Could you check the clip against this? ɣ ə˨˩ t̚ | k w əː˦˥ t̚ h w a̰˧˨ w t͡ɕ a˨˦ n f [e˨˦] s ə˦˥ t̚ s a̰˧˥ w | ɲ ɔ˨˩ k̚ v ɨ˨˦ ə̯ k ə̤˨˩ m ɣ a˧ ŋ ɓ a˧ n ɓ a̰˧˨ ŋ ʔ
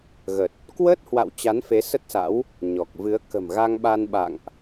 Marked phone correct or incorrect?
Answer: correct